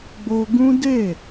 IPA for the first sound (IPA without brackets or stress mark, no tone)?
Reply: ɡ͡b